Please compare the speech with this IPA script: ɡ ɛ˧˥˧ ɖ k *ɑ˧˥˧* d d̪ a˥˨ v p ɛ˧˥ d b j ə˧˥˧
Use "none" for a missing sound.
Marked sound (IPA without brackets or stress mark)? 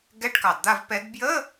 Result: ɑ˩